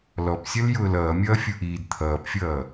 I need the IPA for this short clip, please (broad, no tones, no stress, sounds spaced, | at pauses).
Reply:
l ɔ p sʲ ʌ l j ʊː l ʌː mʲ ʌː fʲ u ʔ iː d t̪ʰ ʌː p fʲ ʌː